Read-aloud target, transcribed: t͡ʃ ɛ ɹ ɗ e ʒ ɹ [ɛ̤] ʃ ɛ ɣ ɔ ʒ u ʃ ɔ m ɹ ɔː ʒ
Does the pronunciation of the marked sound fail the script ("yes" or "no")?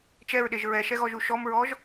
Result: yes